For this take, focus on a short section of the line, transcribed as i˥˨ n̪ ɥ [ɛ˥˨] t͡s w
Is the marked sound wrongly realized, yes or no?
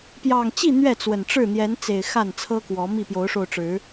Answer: no